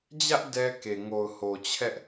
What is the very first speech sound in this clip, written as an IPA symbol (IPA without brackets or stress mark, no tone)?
d͡ʑ